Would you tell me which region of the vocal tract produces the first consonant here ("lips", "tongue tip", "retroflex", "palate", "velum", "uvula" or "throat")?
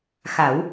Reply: velum